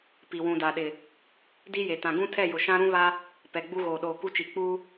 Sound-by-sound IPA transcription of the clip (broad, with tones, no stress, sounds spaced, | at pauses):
p i˨ w ũ˨ d a˨ ɗ ɪ˨ | d i˦ j e˨ t ã˨ ɡ ũ˦ tʰ ɛ˦˨ j ʊ˨ ʃ ã˦ ɾ ũ˦ β a˦ | p ɛ˨ ɡ͡b u˦ ɣ oː˨ ɗ oː˨ k u˦ t͡ʃ i˨ k͡p u˦